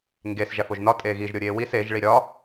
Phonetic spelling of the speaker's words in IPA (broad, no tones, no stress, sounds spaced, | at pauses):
ŋ ɡ e s ʒ æ f o ʒ n ɒ tʼ eː ɣ i ʒ ɾʲ o ɾʲ eː w i s e ʒ ɭ i ɾʲ ɒ